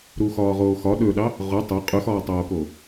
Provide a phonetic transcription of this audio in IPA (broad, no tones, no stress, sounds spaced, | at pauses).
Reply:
ɾ u x ɒː ʁ oː x ɒ ɗ ɵ ɗ ɑ | ʁ ʊ tˤ ɵ qʼ ɵ x ɒː tˤ oː k o